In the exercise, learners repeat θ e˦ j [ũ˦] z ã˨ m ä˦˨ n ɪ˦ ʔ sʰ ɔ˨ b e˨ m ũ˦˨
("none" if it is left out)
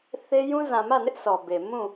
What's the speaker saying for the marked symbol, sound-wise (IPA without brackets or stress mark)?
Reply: ũ˦